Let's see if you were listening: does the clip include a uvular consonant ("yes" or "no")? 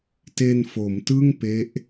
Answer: no